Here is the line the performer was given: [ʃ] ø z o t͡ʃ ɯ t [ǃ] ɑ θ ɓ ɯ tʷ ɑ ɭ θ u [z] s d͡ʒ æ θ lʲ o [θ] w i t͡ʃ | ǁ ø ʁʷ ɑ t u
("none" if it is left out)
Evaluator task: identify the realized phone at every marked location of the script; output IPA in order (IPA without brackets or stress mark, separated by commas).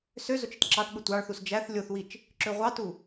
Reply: s, ǁ, none, θ